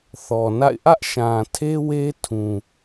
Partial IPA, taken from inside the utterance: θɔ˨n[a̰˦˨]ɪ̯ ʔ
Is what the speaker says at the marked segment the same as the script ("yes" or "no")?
yes